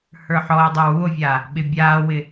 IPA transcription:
h ə˞ ħ ɔ e̯ dˤ ɛ w u o̯ vʲ a | ɓ ɪ bʲ aː w ɪ

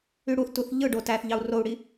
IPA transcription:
y ɽ u θ t u θ ʎ ɯ ɖ o t æ θ ʎ ɑ u̯ r o u̯ ɽ i

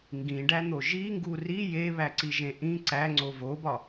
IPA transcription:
ŋ ɡ ĩ ɖ æ n̪ o ʒ i ŋ ɡ u r i j e β æ ǀ i ʒ ẽ ʔ ĩ ǀ æ ŋ͡ǀ o v o b ɒ

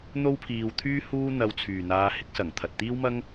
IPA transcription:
n̪ o˥ w pʰ iː˧ w t̪ʰ yː˥ h uː˥ n̪ ɐ˧ w t͡sʰ yː˨ n̪ aː˧ h ɪ˥ k̚ s ɐ˨˩ ŋ t̪ʰ ɐ˨ t̚ t̪ iː˥ w m ɐ˥ ŋ

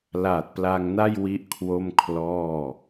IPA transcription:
l aː˨˩ t̚ p l a˧ ŋ n a˥˩ j w i˥˩ ʔ kʰ w o˥˩ m kʰ l ɔː˥˩

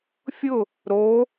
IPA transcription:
fʲ ʊ | ɾ o

